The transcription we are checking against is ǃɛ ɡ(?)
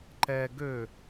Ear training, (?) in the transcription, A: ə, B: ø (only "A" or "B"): B